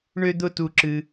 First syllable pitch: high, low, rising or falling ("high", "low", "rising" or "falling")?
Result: high